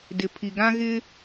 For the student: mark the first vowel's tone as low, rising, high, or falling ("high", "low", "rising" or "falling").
low